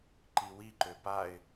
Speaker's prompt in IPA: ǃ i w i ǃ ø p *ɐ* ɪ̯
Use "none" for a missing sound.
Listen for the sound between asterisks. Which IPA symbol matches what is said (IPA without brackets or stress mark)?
a